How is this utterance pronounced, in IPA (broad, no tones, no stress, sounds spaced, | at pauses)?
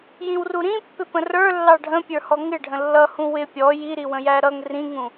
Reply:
j ĩ w r u ɾ ĩ pː ɪ p ə̃ r ə˞ lː ɑ ɖʱ ə̃ pʲ ə˞ h ɔ ŋ ɪ ɖʱ ə̃ lː ʌ h ũ w ɪ pʲ ɔ j i ɾ i w ə̃ j æ ɾ ʌ ŋ r ĩ ŋ ũ